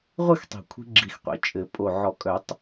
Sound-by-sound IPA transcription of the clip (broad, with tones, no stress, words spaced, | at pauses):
ʁʷɨ˥˧xtˤi̤˨˩kʷʰi̤˧ ɡ͡ǁi˨˩xqʷḭ˨˥ t͡ʃʼɘ˨˩˦ pʼo˨˩ʕɔ˨˩˦kʼœ˨˩˦tˤ